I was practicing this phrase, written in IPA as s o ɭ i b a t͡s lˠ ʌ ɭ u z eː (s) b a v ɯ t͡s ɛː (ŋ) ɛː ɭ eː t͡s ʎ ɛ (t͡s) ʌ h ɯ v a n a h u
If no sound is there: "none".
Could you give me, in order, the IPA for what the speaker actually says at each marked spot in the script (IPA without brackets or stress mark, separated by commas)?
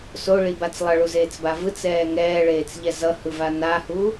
t͡s, ŋ, z